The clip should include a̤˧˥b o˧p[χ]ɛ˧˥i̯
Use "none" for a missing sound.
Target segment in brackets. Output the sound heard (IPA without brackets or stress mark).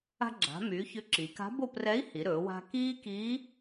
r